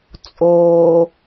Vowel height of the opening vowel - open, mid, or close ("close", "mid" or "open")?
mid